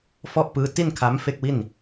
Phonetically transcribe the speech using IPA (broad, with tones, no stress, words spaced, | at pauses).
fɔ˥˩ʔpɯː˦˥ ti˥˩nkʰa˦˥m fe˥˩k̚wi˥˩n